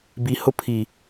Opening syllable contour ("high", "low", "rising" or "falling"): low